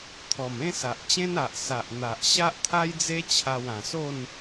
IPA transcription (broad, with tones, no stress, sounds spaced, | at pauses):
t̪ʰ ɔ˨˩ m ẽ˦ s a˨ ʔ t͡ɕ ẽ˦ n a˨ ʔ s a˨ ʔ n̪ a˨ ʔ ɕ a˦ ʔ t̪ʰ a˦ j d͡z e˦ t͡ɕʰ a˧ w ã˨˩ s o˥˧ n